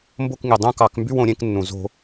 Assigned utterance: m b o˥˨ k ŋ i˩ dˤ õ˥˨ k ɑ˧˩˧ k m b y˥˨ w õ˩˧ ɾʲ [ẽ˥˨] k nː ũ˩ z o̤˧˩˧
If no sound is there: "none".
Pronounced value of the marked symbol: ẽ˥˨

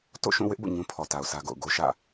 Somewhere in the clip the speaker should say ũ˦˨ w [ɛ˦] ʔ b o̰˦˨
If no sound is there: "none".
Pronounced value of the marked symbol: ɪ˦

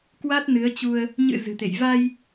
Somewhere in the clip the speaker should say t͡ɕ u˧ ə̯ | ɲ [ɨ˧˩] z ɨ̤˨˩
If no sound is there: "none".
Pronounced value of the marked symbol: ɨ̰˧˨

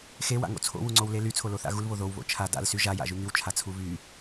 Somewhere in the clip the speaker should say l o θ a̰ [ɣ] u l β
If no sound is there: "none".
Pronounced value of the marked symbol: ɣ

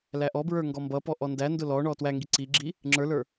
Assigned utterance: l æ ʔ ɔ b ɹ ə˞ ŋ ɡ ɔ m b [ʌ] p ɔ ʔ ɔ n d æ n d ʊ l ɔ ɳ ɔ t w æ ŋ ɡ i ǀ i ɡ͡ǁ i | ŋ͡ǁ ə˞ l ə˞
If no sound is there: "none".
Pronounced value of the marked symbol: ʌ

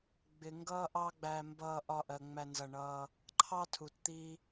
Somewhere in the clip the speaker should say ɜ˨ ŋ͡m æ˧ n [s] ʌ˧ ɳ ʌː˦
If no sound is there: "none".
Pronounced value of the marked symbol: z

